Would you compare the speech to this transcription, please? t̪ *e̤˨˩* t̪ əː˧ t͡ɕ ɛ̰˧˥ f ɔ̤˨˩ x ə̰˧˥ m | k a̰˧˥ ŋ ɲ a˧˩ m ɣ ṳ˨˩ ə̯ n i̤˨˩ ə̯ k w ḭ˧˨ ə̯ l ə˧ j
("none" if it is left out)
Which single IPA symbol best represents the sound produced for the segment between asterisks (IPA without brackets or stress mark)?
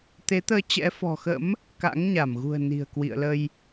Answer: e˨˦